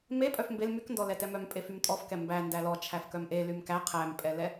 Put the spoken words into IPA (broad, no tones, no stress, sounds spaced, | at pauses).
m e pʼ œ f m b e l m y k n d ɔ l ɛ t ɛ m œ m pʼ e f y m tʼ ɔ f k ɛ m b æ n d æ l ɔ t͡ʃʰ æ f k œ m ʔ e l y m k æ qʰ æ m pʼ ɛ l ɛ